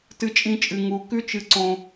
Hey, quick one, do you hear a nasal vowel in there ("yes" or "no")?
yes